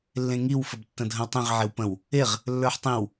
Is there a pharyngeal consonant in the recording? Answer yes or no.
yes